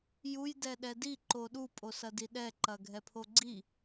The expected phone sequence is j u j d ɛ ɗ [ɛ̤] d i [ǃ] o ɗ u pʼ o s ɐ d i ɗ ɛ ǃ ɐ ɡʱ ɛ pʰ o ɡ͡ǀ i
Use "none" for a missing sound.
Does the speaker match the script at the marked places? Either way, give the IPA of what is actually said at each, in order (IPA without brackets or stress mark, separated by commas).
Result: ɛ, ǃ